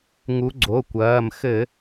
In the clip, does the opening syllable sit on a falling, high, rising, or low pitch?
rising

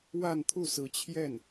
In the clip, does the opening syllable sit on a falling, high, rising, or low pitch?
falling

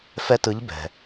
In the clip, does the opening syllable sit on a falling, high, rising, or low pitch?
high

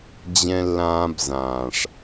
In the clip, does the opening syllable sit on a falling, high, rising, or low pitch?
high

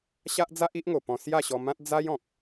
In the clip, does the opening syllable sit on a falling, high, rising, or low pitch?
high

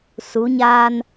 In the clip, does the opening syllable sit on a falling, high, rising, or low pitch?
rising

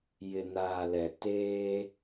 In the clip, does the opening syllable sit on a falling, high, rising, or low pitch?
low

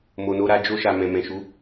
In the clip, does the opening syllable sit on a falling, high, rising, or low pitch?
low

